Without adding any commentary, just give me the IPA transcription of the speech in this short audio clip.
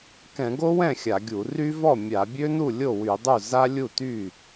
k ɛ̃˧˩˧ ɡ o˦˥ w ɛ̃˥˩ xʲ a˧˩˧ ɡʲ u˧˩˧ r y˦˥ v ɔ˥˩ mʲ a˧˩˧ bʲ ø˦˥ n u˥˩ lʲ o˥˩ w y˧˩˧ dˤ u˥˩ z a˦˥ lʲ u˥˩ t y˥˩

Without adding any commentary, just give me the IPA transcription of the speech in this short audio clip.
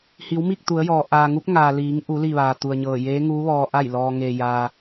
h i˩˧ w m i˥˨ k̚ t̪ u˩˧ ə̯ j ɔː˩ ʔ aː˩ ŋ u˧˥ p̚ ŋ aː˩ l iː˩˧ ŋ ʔ u˩˧ l i˥˨ ʋ aː˩ t̪ u˩ ə̯ ɲ ɤː˧˩ j eː˧˥ ŋ uː˧˥ ʋ ɔː˧ ʔ a˥˨ j l ɔː˧ ŋ e˧ j a˧

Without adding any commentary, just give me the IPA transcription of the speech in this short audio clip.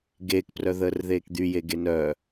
ɡ eː k p r œ ð əː r ð eː k d̪ y j e ɡ e n œ

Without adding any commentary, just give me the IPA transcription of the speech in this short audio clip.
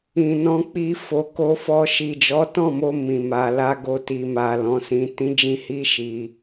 ĩ˨ n ɔ̃˧ k͡p i˧ f o˨ k o˧ f ɔ˧ ʃ i˨ d͡ʒ ɔ˨˦ t ɔ̃˦˨ m o˧ m ĩ˨ m a˨ l a˧ ɡ o˧ t i˨ m a˨ l ɔ̃˨˦ s ĩ˧ t ĩ˦ d͡ʒ ĩ˦ h i˦ ʃ i˧

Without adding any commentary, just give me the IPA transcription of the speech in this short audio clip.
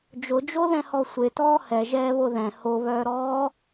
d͡ʒ ʊ d͡ʒ o ð ɛ̃ h ɔ sʷ e t ɔː h ɛ ʒ ɛː β o ð ɛ̃ h o β œː ɾ ɔː

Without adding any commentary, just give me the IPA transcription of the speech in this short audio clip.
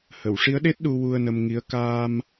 h ə˨˩˨ w ʂ i˧˥ ə̯ ɗ e˦˥ t̚ ɗ u˧ w u˧ ə̯ n ə˧ m ŋ i˧˥ ə̯ k aː˧ m

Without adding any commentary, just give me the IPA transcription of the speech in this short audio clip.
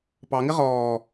p ɑ ŋ ɪ ʁ ɔː

